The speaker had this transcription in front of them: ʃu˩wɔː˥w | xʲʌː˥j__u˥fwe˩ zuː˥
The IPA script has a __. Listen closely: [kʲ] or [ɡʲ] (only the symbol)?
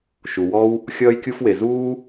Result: kʲ